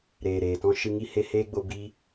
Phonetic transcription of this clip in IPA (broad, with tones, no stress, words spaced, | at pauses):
ɾeː˨ɾeː˨tɔ̃˦ ʃɨ˧ ŋi˦ he˧heː˦ɡ͡bo˧ bi˧